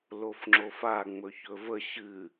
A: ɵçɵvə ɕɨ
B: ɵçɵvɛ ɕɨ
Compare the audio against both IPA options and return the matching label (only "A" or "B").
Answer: A